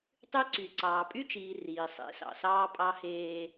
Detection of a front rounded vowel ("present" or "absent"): present